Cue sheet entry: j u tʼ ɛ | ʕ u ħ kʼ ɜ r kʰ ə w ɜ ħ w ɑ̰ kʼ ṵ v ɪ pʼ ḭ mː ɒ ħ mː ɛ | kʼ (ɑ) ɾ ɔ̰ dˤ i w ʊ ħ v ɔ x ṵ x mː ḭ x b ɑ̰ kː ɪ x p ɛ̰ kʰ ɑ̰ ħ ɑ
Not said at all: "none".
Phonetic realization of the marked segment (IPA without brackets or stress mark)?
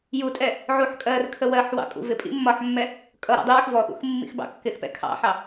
ʌ